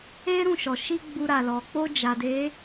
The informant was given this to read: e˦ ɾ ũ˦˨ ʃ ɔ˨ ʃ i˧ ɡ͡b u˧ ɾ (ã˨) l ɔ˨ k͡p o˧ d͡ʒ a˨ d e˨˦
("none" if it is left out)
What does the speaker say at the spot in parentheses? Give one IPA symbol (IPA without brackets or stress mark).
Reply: a˨